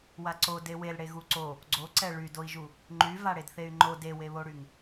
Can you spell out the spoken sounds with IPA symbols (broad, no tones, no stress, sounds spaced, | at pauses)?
w a ǀ o d e w e l ɽ e ɣ u ǀ o | ɡ͡ǀ o ǀ ɛ ɭ y d o i̯ ʒ u | ŋ͡ǃ y v a ɽ e d θ e y̯ ŋ͡ǃ o d e w e β o ɽ y ŋ